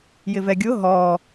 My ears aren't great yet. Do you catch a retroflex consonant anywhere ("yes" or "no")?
no